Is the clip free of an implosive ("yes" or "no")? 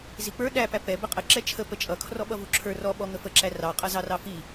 no